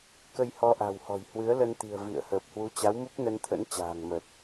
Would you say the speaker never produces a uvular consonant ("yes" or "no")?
yes